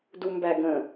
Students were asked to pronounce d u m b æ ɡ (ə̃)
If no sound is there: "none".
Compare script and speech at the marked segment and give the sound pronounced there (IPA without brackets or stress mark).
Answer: ə̃